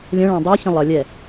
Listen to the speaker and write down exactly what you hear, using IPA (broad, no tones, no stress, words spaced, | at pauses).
lʲə̃ ɭæ̃dˤə˞çə̃ lˠʌ lʲɛ